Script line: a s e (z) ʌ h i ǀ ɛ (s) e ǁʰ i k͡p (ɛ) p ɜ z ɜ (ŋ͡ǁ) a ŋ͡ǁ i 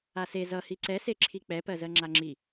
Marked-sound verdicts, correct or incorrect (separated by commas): correct, correct, correct, correct